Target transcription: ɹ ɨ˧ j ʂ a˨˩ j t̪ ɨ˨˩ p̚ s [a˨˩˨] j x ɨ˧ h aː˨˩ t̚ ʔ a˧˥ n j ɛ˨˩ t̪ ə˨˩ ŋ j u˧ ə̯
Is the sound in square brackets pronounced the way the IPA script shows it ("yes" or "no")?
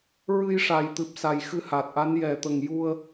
no